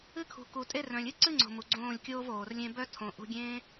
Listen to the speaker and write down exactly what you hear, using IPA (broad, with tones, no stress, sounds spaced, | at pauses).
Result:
ɨ˦ kʰ ṳ˨ k u˨ tʼ e˦ r œ̃˨ lʲ ɨ˦ ǀ ɨ˦ ŋ͡ǀ o̤˨ m u˨ ɡ͡ǀ õː˦˨ lʲ kʲ oː˦ v oː˨ r lʲ ẽ˦ b œ˦ tʰ õ˨ ʔ ṳ˧ ɡʲ ẽː˦